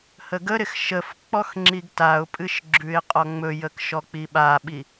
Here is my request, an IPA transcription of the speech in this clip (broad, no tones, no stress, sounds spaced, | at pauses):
h ə ɡ ə ɾ ɪ x ʃ ə f k͡p ɔ x ŋ͡ǁ i ɡ t a ʊ̯ pʼ ɨ ʃ ɡ͡ǁ ʉ ɪ̯ qʼ ɔ ŋ͡m ɵ j ə k ʃ ɔ k͡p i ɓ a ɓ i